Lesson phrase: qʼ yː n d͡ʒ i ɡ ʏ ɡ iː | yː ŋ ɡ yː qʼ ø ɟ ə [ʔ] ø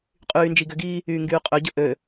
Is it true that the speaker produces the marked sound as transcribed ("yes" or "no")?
yes